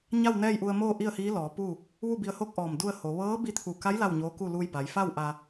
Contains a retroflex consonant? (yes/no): no